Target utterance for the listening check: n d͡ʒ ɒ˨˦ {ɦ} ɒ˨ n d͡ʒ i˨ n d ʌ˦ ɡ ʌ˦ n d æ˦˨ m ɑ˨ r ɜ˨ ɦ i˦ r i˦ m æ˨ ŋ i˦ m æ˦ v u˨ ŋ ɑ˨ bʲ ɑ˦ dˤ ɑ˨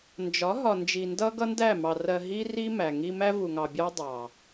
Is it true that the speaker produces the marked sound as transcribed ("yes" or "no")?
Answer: yes